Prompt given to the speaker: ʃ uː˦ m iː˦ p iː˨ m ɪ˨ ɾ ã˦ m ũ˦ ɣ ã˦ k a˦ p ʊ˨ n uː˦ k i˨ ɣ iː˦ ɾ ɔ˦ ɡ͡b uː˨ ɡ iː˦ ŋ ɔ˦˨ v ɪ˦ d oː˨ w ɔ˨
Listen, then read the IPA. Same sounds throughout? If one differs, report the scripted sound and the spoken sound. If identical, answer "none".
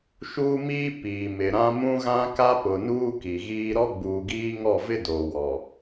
none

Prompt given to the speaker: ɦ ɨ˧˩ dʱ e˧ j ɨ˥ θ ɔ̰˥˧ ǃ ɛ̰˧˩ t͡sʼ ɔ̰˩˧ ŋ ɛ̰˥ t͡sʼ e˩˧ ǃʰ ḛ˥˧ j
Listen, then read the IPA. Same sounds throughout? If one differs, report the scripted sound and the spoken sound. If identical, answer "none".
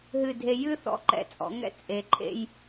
none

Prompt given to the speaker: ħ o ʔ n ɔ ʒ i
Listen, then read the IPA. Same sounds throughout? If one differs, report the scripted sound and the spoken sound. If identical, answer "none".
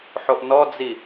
ʒ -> d͡z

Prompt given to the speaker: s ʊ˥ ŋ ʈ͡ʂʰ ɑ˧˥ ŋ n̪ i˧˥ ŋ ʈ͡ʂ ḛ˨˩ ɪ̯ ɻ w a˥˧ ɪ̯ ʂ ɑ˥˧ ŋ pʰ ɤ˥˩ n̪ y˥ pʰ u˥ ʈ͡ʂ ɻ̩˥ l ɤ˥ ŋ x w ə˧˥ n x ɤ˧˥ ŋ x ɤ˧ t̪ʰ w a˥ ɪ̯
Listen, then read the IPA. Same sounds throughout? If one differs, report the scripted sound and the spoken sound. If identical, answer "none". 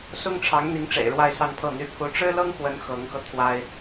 ʂ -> s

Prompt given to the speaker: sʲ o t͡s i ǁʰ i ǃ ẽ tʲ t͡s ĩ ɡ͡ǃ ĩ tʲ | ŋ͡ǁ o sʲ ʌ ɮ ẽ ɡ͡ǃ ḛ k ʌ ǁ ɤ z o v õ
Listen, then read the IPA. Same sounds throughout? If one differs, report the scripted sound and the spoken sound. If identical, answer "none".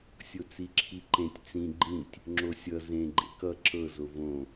ɮ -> z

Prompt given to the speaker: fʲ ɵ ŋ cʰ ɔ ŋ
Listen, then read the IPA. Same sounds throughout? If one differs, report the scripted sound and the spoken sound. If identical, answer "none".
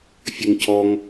none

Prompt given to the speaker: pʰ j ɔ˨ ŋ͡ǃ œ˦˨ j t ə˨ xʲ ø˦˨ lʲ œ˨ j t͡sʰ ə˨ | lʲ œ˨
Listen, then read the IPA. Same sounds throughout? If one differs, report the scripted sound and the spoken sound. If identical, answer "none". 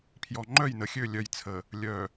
t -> n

